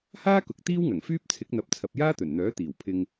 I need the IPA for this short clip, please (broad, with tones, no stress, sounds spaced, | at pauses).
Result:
h aː˥ k ʊ˨ k̚ t̪ iː˥ w ŋ ɐ˨˩ ŋ f yː˥ p̚ t͡sʰ ɪ˨˥ k̚ n̪ ɐ˨˥ p̚ t͡sʰ ɐ˨ p̚ j aː˥ t̪ ɵ˨˩ n n̪ œː˨˥ t̪ iː˨˩ w pʰ ɪ˧ ŋ